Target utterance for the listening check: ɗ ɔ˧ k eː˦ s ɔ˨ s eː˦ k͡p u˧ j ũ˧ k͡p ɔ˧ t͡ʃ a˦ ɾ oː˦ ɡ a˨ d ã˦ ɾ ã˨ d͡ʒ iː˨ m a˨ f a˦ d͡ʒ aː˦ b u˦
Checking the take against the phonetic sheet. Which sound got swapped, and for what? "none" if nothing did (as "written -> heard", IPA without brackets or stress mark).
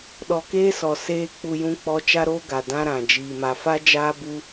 none